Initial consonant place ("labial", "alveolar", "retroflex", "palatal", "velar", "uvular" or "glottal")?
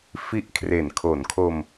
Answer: labial